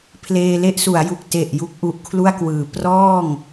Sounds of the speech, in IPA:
pʰleː˧le˥˩ʔsu˩˦a̯ju˨˩k̚ te˨˩ʔ ju˥˩k̚ʔu˦˥ʔkʰlu˥˩a̯kwɯː˩˦ prɔː˥˩ŋ

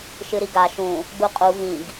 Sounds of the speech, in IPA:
ʃɨɾiɡa ʃũ | ɡ͡buqʼu vĩɡ

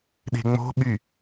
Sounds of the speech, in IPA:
ɗe̤ŋ͡mo̤ɓy

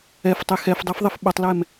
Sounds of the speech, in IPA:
ɛftˤe xɛfdˤefðˤɪf ɓʊtˤlɛm

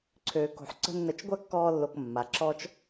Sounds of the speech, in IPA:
ǀʰøː˨ko̤˨ħ ǀə̤˦nːə˧t͡ʃ ɡʷa˦kːɔː˧lːo˨k mːa˨ǁɔ˦t͡ʃ

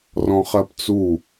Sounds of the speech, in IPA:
rɔ̃χɜpt͡su

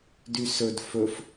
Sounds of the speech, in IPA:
dysɵd fɵf

